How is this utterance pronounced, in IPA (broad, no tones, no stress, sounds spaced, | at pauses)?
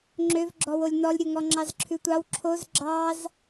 ŋ͡ǁ ø v ɡ͡ǁ ɔ w o lʲ n ɔ lʲ ɾʲ o ŋ ɔ ŋ͡ǁ ɑ z ǁʰ ʉ tʷ ɑ w ǁʰ o z ɡ͡ǁ ɑ z